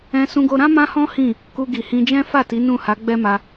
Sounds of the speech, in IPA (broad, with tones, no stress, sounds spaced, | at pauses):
ɛ̃˧ s ũ˧ ɡ o˧ ɾ ã˦ m ã˦ h ɔ̃˦ h ĩ˦˨ | k u˧ ɡ i˨ h ĩ˧ d͡ʒ ɛ̃˦ f a˦˨ t i˨˦ n ũ˦˨ h a˨˦ ɡ͡b ɛ˦ m a˧